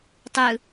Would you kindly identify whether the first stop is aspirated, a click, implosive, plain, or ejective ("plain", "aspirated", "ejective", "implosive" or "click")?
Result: plain